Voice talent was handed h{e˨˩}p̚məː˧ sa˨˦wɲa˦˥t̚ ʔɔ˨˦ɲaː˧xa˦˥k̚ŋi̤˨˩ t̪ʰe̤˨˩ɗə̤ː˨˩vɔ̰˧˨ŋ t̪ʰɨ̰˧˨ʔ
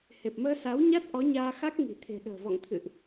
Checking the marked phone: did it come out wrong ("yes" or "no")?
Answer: no